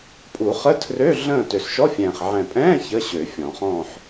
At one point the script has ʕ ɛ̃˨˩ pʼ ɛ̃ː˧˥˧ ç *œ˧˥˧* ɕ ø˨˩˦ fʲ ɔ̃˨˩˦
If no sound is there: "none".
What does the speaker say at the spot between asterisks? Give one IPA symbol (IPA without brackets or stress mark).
ə˧˥˧